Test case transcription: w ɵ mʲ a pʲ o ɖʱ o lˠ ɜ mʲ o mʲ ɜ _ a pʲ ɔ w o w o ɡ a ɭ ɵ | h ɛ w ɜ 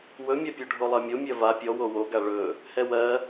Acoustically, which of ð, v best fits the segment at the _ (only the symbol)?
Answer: v